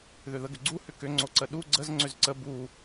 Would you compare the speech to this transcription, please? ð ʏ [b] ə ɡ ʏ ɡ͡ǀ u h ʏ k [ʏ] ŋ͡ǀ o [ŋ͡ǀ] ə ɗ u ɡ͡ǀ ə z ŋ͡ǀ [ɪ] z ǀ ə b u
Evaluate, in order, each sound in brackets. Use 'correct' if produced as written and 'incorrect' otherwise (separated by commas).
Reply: incorrect, correct, incorrect, incorrect